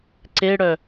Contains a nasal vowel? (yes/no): no